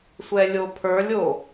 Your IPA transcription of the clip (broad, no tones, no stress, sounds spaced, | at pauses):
sʷ ɛ lʲ o pʰ ə˞ lʲ o